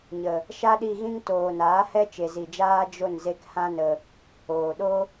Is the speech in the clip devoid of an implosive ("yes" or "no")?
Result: no